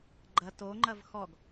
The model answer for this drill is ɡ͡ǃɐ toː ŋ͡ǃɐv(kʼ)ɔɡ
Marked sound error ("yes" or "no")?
yes